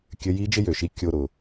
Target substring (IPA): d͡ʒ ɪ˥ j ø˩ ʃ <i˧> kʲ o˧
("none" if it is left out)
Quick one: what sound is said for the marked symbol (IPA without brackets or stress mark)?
i˧˥